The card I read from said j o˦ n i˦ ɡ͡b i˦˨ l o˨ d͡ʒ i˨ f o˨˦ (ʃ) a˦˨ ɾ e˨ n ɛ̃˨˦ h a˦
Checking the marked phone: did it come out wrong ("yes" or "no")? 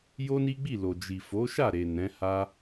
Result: no